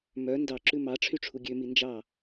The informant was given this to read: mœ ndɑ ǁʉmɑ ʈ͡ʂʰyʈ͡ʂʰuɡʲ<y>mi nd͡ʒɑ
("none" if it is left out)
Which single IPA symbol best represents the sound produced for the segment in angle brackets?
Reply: ø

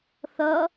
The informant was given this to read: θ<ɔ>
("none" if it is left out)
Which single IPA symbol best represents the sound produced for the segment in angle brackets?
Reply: ʌ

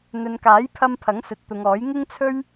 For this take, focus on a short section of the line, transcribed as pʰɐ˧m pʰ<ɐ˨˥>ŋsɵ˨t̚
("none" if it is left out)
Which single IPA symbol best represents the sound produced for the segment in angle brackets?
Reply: ɐ˨˥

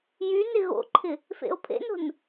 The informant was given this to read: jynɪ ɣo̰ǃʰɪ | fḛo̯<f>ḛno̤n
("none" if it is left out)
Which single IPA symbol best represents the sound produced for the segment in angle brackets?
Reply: pʰ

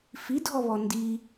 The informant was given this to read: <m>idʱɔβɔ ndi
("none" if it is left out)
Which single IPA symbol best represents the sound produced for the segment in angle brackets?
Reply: f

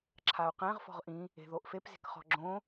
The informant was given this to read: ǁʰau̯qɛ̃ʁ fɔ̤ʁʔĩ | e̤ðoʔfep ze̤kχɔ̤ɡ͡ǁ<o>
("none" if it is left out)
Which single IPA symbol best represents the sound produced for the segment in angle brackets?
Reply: õ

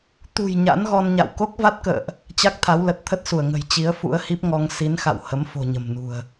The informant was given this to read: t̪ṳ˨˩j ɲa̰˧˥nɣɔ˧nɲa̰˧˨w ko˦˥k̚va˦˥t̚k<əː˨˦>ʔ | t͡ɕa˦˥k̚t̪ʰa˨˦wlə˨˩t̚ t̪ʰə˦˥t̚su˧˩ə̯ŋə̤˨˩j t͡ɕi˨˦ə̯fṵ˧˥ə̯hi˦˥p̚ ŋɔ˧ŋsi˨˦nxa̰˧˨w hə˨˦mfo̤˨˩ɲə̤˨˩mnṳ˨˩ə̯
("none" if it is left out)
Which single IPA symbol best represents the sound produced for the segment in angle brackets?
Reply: ə̰ː˧˨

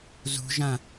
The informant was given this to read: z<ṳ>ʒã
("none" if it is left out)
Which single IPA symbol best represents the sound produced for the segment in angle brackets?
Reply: ṳ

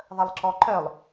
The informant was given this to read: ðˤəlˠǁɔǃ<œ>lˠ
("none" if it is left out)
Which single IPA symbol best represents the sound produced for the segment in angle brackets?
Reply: œ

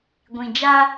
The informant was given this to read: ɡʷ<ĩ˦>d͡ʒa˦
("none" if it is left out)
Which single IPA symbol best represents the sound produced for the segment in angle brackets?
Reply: ĩ˨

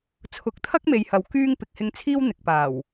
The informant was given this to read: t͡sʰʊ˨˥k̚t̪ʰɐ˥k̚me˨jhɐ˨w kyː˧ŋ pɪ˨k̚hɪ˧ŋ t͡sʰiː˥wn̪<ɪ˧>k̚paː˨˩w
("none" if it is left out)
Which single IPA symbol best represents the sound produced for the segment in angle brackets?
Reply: ɪ˨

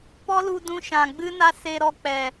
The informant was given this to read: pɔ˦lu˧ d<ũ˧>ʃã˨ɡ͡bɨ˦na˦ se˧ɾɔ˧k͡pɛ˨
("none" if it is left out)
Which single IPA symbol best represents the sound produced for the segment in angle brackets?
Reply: ũ˧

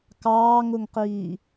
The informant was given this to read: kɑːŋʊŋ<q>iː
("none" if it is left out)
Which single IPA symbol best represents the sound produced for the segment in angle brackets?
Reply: q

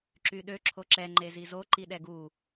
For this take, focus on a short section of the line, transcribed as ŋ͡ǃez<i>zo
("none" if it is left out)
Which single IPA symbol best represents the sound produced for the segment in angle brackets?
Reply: i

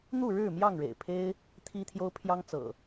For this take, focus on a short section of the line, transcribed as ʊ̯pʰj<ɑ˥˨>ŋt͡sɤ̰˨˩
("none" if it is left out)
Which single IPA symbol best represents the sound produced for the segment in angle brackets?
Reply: ɑ˦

